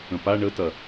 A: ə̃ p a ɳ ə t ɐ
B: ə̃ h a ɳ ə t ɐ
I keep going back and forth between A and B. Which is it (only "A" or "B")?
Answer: A